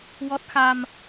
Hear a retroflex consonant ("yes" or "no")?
no